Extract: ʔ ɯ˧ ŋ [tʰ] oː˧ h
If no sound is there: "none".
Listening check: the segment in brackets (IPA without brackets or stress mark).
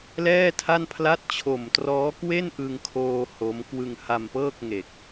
kʰ